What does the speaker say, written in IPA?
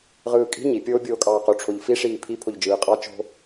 ʁɯːkʼi̤ ɲi pʲoːbʲoːkʼɑːqo ʈ͡ʂʰoʎfi ʂiːpʰi pʰoʎd͡ʒɯːqʼɑ t͡ʃo̤

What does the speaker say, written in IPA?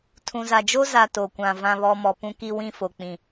tʰũ˨za˨d͡ʒo˦ za˨ to˨kʷã˨ vã˨βɔ˨ mɔ˨ pũ˨ki˨wĩ˨ fo˨k͡pĩ˨

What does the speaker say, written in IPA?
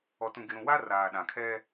ɔ˨tũ˨ ɡɪ˨ɾũ˨ wa˦ raː˨ɗã˨kʰɛ˦

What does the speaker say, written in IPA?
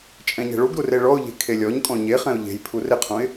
t͡ʃʼɛ̃ɲɛ̤ɭuɡɾur eɭɔʊ̯ʎe̤ kʰelʲɔɲkʼɔ̃ ɲeχɛ̃ʊ̯ ʎe̤j pʰurɪqʰũɪ̯

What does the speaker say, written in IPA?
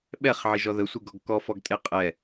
ɓɛχʕiʒɔ ðəsʷiɡɔɡ kɔfɔɡtʼe qʼɛ

